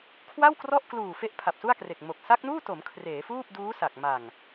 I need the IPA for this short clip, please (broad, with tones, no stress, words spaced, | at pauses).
kʰwa˥˩wkrɔ˥˩ʔkluː˨˩ fe˥˩ʔpʰa˨˩p̚su˥˩a̯kre˨˩k̚ mo˨˩k̚ sa˦˥k̚nuː˥˩to˩˦m kʰreː˩˦fuː˥˩p̚duː˦˥ sa˨˩k̚ ma˨˩ŋ